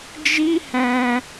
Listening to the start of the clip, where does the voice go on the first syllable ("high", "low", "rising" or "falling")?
high